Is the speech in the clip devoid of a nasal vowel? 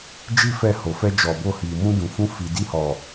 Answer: no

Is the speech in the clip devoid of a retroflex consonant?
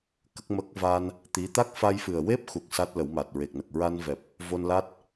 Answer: yes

